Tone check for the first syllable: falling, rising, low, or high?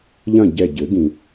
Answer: falling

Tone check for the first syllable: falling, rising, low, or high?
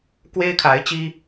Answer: high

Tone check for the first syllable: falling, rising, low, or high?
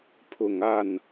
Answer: low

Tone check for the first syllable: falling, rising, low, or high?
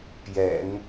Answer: low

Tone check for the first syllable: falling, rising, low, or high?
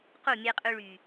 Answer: falling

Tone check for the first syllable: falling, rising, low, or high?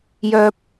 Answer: low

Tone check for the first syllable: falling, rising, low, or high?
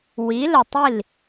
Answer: rising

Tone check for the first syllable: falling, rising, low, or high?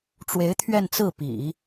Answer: rising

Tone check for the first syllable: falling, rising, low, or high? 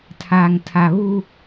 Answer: low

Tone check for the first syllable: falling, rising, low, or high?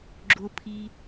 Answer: low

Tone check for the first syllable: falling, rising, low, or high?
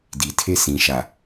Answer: low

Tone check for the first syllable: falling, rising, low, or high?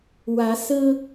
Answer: rising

